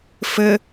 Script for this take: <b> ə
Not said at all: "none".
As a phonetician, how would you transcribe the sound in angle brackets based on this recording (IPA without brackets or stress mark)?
f